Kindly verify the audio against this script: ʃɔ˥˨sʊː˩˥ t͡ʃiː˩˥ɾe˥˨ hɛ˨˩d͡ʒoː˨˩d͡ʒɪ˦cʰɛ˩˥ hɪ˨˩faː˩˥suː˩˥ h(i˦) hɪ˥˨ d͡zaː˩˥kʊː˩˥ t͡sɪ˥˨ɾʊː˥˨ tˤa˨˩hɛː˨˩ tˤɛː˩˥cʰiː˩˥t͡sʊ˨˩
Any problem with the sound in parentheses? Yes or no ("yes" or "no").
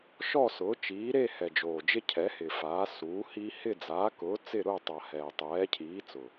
no